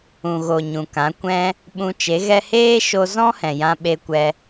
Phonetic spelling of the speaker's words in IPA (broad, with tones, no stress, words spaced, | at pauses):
ũ˨ɣo˨ ɲũ˨kã˨˦ kʷɛ̃˧ | ɓũ˧t͡ʃe˨˦ɣɛ˦ heː˦ʃo˧zɔ̃˦ hɛ̃˨jã˧ ɓe˧kʷɛ˧